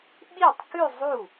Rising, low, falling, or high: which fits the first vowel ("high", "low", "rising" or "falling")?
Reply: falling